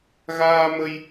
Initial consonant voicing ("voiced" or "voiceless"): voiced